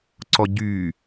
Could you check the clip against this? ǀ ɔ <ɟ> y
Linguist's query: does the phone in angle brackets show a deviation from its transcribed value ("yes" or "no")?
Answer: no